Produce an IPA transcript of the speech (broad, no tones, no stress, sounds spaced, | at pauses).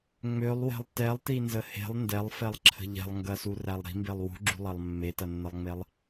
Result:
ŋ͡m ø lˠ w ɛ̤ lˠ t ɛ lˠ t i n z ə h e̤ lˠ n d ɛ lˠ f ɛ lˠ ǁʰ ə̤ ʎ ɛ̤ lˠ ŋ ɡ ɐ s u r æ lˠ ɾ i̤ m b e lˠ w ṳ ɡ͡ǁ ṳ lˠ ɐ lˠ mː e t ɐ nː ə lˠ ŋ͡m e lˠ